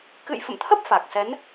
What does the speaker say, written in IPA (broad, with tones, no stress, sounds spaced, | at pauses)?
k ɨ̰˧˨ j f ə̰˧˨ m t̪ʰ ə˦˥ p̚ f a˨˩ k̚ s ɛ˨˦ n